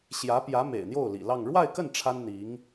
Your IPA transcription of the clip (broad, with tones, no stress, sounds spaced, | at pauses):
ɕ j ä˧˥ p j ä˧˥ m ḛ˨˩ ɪ̯ n̪ j o˥˩ ʊ̯ l ḭ˨˩ l ɑ˥˧ ŋ ɻ w a˥˧ ɪ̯ k ə˥˩ n ʈ͡ʂʰ a˥ n n̪ i˧˥ ŋ